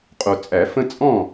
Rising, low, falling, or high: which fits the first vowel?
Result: low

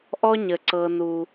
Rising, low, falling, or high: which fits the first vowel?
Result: high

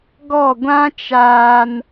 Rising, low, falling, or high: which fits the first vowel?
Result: falling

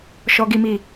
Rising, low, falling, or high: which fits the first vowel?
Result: high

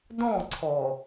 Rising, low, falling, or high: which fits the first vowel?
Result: falling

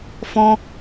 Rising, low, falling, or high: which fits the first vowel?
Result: high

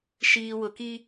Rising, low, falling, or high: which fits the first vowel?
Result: low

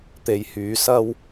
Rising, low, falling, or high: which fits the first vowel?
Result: low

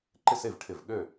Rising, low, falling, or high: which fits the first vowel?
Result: falling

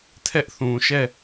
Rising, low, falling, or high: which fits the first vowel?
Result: high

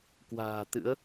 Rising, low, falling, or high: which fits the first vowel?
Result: low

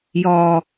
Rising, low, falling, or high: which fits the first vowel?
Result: low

